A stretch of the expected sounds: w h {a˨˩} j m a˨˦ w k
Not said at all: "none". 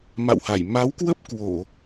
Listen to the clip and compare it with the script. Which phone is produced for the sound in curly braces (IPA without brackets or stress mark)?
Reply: a˧˩